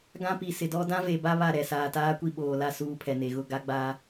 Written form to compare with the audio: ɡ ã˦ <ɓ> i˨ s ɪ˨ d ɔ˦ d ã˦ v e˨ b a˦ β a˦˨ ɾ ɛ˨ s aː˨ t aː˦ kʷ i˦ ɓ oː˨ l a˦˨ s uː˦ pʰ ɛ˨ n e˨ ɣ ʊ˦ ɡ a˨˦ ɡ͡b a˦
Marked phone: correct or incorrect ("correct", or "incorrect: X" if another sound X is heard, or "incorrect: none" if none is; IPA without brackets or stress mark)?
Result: incorrect: p